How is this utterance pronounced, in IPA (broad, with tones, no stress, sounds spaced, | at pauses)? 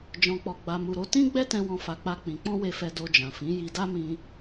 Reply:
d͡ʒ ɔ̃˧ k͡p ɔ˧ ɡ͡b a˧ m u˧ ɾ o˦ t ĩ˦ ɡ͡b ɛ˦ t ɛ̃˧ w ɔ̃˦ f a˧ k͡p a˦ k͡p ĩ˧ k͡p ɔ̃˦ w e˧ f ɛ˧ d o˧ d͡ʒ ã˨ f ĩ˨˦ j i˧ d a˦ m ĩ˧